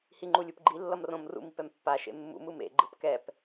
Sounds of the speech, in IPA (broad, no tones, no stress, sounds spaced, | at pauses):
h i ŋ͡ǃ u lʲ u p ɡ͡ǃ i lː ʌ m r õ m r ṵ m i p ɛ m pː a ʃ ḛ mː ṵ m ɯ m ḛ ɡ͡ǃ ɯ p k ɛ p